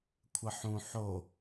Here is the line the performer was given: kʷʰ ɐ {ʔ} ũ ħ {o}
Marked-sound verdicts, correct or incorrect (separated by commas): incorrect, correct